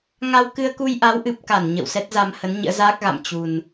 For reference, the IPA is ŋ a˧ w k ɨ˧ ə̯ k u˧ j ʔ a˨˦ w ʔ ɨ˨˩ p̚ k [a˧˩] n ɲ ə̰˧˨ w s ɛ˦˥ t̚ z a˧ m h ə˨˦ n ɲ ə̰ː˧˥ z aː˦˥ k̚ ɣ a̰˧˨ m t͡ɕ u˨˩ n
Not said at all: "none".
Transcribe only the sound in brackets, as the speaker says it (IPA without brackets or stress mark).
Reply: a˧˩